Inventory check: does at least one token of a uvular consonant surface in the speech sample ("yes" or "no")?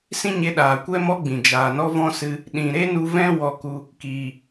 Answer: no